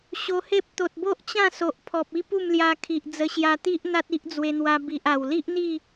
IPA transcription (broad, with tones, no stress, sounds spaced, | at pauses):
ɕ o˧ h e˦ p̚ t̪ o˨ t̚ b o˦ ʔ t͡ɕ ã˥˧ s o˨ ʔ pʰ ɔ˨ p̚ i˦ p u˥˧ m l j a˧ kʰ i˨ ʔ d͡z ə˧ ɕ j a˧ t̪ i˦ ʔ n̪ a˦ t̚ i˦ ʔ d͡z w e˧ n̪ w a˧ b i˨ ʔ a˨˩ w l i˦ ʔ n̪ i˥˧